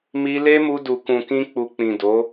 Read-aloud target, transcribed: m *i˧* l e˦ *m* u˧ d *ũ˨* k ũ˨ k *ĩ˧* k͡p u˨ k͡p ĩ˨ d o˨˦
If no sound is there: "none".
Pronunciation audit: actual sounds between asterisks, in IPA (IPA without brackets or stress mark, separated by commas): i˧, m, u˨, ĩ˧